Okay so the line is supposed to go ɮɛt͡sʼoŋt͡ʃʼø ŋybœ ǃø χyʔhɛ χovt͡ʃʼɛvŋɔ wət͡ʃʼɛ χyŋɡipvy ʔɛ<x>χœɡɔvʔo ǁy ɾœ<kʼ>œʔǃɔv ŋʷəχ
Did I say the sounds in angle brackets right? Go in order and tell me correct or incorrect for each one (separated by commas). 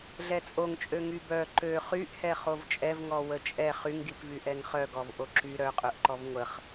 incorrect, incorrect